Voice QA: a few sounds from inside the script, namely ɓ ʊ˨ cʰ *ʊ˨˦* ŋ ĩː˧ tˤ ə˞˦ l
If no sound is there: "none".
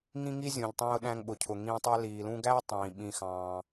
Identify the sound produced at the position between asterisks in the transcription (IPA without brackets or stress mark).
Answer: ʊ˨